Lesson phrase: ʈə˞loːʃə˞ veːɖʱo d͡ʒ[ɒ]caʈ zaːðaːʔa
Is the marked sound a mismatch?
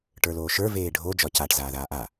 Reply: no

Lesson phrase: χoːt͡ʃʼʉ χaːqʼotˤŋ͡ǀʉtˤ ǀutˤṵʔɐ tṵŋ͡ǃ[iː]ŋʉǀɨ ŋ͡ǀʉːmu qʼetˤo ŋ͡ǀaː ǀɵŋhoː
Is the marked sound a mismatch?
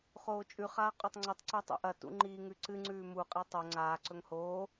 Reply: no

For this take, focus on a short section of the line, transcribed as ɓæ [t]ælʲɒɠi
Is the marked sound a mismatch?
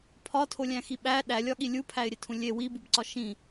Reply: yes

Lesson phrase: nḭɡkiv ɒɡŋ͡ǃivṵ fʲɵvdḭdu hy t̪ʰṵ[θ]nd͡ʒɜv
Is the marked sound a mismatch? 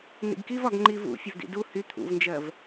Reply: yes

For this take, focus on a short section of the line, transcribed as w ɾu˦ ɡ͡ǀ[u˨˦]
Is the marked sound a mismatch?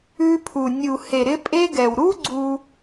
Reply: yes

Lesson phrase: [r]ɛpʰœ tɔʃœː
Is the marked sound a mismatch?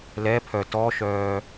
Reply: yes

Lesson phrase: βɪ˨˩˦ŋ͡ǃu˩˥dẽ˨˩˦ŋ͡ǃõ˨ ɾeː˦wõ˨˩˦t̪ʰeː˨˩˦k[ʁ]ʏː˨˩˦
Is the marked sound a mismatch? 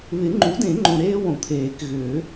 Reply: yes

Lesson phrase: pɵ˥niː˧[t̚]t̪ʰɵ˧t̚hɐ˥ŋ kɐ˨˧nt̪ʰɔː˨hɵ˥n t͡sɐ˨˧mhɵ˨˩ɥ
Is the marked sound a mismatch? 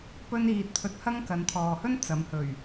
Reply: no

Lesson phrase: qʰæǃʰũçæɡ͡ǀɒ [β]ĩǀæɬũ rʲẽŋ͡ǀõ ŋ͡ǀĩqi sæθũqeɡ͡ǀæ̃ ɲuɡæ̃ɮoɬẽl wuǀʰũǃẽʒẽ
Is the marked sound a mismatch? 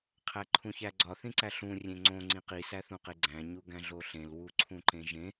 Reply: yes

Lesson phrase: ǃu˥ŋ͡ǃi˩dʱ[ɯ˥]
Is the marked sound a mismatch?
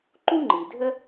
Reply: yes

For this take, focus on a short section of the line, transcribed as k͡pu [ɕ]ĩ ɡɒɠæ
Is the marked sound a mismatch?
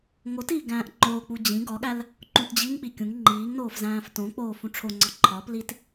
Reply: yes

